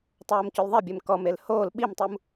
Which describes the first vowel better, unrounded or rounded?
rounded